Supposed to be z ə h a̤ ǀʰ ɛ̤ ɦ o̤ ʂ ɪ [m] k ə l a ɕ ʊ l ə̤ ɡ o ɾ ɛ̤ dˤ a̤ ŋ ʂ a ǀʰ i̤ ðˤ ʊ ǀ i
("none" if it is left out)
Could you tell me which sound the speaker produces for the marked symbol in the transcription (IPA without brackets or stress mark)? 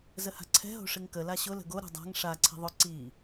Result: ŋ